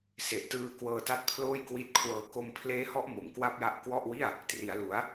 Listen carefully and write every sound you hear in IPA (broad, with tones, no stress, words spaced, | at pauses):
se˨˩ʔtɯː˧ kwɤː˧ta˦˥t̚pʰloː˥˩j kwi˦˥t̚kʰwɤː˧ ko˧mpʰleː˦˥hɔ˦˥ʔ mo˨˩mkwa˥˩p̚ja˦˥ʔ kwɔ˥˩ʔwi˥˩a̯ | tri˩˦a̯lu˩˦a̯